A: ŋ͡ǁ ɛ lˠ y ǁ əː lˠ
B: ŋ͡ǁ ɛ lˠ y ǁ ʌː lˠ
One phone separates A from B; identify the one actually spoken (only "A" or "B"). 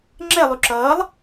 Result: B